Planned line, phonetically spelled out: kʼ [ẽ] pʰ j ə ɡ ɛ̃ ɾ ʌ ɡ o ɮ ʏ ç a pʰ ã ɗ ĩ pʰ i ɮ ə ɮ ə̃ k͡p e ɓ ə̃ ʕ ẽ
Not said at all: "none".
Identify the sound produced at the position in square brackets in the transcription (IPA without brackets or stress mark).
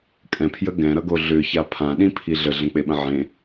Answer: ɛ̃